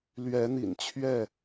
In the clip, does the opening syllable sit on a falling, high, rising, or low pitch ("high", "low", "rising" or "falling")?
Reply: rising